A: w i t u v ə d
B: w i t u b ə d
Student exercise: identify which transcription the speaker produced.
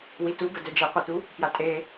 B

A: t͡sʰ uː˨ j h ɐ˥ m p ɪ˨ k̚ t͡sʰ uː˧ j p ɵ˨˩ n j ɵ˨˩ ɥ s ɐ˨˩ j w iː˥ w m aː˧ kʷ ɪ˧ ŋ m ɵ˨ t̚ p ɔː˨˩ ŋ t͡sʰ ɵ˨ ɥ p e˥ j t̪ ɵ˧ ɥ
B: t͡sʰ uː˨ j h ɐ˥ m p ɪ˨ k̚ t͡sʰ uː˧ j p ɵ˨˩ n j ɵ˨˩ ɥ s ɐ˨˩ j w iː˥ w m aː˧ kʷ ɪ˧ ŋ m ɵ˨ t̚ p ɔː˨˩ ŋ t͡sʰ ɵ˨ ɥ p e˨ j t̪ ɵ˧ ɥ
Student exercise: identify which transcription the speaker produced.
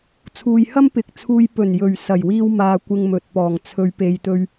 B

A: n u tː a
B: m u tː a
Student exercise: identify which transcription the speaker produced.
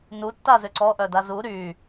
A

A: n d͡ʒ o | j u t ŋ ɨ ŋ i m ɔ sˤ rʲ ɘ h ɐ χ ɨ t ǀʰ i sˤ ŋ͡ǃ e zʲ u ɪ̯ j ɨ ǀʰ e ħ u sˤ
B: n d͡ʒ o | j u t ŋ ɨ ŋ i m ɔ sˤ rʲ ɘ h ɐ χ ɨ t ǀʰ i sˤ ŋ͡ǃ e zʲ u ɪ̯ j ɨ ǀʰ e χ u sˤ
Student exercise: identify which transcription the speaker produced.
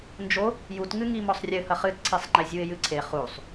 B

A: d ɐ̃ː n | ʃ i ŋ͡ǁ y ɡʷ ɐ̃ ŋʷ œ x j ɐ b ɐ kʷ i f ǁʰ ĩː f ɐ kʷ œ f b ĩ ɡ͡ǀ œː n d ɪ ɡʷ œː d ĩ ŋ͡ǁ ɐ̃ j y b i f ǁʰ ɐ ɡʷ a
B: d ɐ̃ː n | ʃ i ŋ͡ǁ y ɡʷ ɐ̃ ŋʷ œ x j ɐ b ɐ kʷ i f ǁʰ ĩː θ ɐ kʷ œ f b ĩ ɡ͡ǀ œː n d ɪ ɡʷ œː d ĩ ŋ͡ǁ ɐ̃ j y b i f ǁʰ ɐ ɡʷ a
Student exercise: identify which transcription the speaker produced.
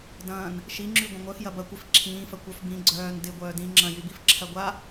A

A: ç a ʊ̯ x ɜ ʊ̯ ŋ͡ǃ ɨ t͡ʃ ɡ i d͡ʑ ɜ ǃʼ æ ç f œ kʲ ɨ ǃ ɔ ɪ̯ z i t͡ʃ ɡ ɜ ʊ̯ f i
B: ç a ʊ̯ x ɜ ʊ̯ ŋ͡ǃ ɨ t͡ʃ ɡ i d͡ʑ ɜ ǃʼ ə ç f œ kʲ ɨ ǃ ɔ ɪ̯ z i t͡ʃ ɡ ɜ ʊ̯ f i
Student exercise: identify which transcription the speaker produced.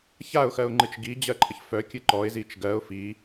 B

